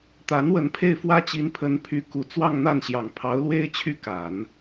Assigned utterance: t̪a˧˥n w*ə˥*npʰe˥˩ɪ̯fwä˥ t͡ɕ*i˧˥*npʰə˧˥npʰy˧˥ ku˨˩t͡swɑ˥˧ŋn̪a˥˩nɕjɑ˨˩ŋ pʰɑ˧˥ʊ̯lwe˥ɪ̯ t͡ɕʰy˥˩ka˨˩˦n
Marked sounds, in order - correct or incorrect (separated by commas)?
incorrect, correct